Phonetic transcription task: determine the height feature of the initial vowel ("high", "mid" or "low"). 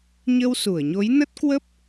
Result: mid